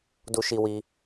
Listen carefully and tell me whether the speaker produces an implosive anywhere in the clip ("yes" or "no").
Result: no